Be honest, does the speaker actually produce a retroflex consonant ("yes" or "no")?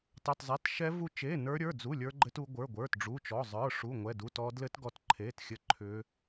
yes